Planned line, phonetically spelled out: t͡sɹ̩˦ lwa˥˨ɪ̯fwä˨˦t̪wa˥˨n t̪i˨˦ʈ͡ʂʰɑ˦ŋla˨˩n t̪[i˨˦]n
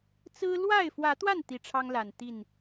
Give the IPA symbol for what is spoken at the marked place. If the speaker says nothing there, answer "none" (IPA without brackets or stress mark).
i˥˨